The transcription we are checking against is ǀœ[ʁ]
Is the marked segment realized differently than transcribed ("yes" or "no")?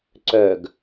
yes